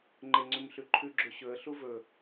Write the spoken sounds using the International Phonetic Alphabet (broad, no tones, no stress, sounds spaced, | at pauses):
ŋ͡ǃ e ŋ͡ǀ ʉ m ɬ ʉ ǃʰ ʉ ɡ͡ǁ ɵ ɕ ɵ ə̯ ɬ u v ɵ